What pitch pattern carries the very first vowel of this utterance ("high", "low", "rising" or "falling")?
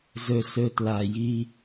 low